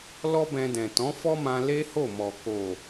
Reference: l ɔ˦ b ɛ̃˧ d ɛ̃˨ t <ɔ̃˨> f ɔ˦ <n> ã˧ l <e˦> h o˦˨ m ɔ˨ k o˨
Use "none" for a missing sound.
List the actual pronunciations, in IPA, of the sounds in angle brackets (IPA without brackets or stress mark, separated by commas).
ɔ̃˨˦, m, e˦